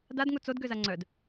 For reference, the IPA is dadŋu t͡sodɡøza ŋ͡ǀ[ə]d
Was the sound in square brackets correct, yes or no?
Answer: no